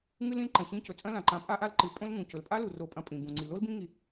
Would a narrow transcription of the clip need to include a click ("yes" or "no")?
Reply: yes